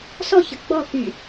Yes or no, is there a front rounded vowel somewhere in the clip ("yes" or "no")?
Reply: yes